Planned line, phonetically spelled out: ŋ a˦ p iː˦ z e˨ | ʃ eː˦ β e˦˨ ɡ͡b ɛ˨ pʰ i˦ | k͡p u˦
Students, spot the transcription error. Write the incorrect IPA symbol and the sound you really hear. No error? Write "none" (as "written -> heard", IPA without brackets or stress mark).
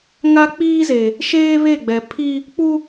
p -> k͡p